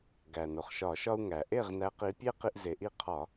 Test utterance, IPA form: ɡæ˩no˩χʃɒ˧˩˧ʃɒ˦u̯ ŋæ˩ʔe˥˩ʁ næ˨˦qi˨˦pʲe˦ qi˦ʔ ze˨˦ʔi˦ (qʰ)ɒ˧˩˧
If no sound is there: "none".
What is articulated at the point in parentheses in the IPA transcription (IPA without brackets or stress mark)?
qʰ